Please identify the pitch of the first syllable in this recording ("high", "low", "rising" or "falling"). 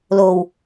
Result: low